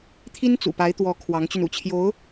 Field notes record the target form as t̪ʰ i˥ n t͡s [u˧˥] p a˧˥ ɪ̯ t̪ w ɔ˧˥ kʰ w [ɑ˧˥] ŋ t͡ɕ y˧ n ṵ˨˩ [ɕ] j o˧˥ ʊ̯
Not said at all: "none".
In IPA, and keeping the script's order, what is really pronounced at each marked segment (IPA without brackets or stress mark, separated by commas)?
ṵ˨˩, ɑ˧˥, t͡ɕʰ